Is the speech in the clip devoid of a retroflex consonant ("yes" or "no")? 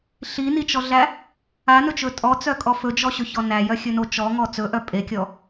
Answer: yes